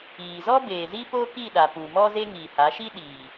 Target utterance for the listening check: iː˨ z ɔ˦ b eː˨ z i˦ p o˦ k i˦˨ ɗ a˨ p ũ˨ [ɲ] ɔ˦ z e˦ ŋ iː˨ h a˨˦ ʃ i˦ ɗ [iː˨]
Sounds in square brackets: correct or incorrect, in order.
incorrect, correct

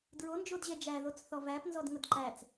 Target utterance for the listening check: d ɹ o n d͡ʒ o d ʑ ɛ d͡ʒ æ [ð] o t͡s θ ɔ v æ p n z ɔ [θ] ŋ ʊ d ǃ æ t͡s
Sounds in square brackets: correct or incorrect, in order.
correct, incorrect

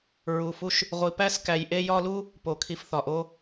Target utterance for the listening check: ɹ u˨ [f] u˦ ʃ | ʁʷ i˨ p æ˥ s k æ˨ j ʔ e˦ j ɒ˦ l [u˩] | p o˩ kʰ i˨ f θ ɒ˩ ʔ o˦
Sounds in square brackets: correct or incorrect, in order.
correct, incorrect

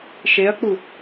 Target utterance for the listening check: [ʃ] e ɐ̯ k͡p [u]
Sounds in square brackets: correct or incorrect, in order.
correct, correct

